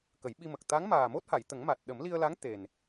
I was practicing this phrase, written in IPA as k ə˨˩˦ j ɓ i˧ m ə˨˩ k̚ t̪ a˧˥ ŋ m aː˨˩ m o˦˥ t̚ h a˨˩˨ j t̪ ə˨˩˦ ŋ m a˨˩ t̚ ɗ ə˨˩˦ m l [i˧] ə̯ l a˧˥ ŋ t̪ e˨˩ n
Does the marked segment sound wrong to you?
no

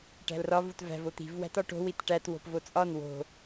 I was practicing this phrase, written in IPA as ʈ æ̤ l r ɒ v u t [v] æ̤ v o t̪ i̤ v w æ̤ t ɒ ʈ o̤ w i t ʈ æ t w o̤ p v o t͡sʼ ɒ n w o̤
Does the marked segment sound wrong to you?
no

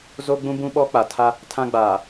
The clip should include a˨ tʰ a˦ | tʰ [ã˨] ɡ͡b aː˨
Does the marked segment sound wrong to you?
yes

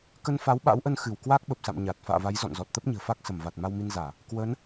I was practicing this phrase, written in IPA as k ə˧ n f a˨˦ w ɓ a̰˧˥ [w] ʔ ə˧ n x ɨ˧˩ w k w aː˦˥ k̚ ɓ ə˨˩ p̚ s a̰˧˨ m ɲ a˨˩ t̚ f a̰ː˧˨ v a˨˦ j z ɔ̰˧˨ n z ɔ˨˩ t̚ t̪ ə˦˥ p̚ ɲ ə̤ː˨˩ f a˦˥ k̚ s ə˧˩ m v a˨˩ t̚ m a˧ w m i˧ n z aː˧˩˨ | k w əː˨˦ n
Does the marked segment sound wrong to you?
no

